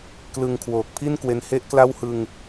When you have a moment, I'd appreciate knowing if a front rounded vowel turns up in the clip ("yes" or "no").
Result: no